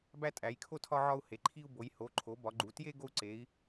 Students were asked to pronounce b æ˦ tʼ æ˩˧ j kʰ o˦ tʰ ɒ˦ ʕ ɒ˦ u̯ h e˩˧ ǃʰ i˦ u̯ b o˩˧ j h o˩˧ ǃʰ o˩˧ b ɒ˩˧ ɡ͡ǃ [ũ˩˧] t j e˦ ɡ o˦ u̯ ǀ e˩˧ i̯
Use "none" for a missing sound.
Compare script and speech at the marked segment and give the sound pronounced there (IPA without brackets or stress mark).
u˩˧